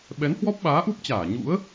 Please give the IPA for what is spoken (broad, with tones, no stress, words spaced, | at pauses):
ɓɛ˨˦nhwɔ˦˥p̚ɓaː˨˦ʔu˦˥p̚ t͡ɕaː˧˩ ɲṵ˧˥ə̯